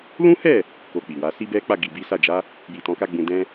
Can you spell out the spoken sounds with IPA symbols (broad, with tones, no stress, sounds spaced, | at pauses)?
l ũ˦ h ɛ˦˨ | k o˧ k͡p i˨ w a˨˦ s i˦ b ɛ˦ k͡p a˦˨ ɡ i˨ b i˨˦ s a˦˨ d͡ʒ a˨˦ | j i˨ t ɔ̃˨˦ k a˦ ɡ͡b ũ˦ d ɛ̃˦